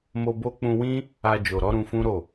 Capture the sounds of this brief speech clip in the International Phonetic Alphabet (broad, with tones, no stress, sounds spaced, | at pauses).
m o˧ b o˦ k͡p ũ˧ w ĩ˦ | a˧ d͡ʒ o˨ ɾ ɔ˨˦ ɾ ũ˧ f ũ˦ ɾ o˦˨